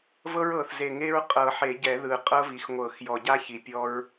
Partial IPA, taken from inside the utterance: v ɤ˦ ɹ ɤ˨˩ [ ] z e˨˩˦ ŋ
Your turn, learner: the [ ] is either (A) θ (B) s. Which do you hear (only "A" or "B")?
A